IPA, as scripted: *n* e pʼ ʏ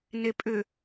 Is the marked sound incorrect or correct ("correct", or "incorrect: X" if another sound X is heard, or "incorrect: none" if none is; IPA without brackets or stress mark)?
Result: correct